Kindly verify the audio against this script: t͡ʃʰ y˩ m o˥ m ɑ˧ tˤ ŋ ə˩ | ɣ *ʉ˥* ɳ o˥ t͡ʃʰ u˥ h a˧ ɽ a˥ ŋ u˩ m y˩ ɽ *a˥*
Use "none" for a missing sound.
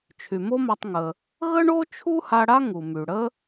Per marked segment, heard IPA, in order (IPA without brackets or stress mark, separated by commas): ə˥, ə˥